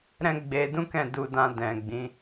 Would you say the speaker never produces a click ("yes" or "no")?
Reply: yes